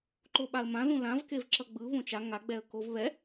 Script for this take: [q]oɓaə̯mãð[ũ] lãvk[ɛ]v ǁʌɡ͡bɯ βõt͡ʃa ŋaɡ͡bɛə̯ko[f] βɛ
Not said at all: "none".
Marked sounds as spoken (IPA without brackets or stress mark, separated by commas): ǃ, ũ, e, v